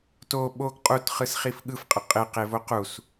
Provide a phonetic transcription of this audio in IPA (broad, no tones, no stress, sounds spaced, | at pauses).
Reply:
t o ɓ o ɡ qʼ u t χ ɯ s χ i f ɠ ɯ f qʼ ə qʼ ɪ q e v o q u s